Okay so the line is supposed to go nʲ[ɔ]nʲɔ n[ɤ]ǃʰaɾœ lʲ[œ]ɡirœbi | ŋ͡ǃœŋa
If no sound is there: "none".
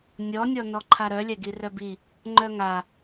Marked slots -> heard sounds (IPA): ɔ, ɔ, ɛ

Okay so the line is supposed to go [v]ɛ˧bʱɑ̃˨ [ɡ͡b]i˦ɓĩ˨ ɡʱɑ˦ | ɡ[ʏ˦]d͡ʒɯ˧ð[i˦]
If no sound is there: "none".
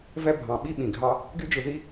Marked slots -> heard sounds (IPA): v, ɓ, y˦, i˦

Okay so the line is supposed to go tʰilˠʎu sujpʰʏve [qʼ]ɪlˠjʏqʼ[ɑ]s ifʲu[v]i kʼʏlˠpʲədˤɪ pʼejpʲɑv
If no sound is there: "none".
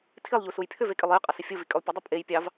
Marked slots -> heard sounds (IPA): kʼ, ɑ, v

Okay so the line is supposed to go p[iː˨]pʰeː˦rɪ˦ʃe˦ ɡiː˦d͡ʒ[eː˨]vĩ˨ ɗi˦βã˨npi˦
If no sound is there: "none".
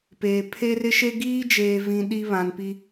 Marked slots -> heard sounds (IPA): eː˨, eː˨

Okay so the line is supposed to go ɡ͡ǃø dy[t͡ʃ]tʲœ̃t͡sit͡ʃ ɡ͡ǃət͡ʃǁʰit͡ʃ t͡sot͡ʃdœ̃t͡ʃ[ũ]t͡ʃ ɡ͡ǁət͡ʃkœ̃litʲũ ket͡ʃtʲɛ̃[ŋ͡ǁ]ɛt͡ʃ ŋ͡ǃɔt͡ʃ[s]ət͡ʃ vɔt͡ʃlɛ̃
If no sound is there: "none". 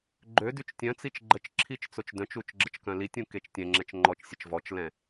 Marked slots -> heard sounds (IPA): t͡ʃ, u, ŋ͡ǁ, sʲ

